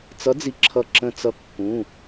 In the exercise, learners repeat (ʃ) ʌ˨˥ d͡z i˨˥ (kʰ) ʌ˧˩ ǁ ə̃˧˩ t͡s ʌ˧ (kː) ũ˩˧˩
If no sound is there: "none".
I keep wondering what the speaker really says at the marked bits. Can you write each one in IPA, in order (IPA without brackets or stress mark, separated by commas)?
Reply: t͡s, ǁʰ, kː